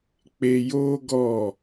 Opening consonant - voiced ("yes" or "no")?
no